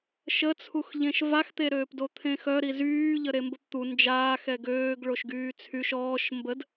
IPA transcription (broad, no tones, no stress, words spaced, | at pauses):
ʃət͡sʰuxʎẽʃ vaxt̪eɾøːpdo t̪ʰẽxœ ɾizyː ʎəɾembəpt̪u nd͡ʒaːxɛ ɡøːɡɭoʃ ɡyːt͡sʰyʃ ɔːʃ mbəd